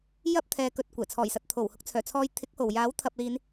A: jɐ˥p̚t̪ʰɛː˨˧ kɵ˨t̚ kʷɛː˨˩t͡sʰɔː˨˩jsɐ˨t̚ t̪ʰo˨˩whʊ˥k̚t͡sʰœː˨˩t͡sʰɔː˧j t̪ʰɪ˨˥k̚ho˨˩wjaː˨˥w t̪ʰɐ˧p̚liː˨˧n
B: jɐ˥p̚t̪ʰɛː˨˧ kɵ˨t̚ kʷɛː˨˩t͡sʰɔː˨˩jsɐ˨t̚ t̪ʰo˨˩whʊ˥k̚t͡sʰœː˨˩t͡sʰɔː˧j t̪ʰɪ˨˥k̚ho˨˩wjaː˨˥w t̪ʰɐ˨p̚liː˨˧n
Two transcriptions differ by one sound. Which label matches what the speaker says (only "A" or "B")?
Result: B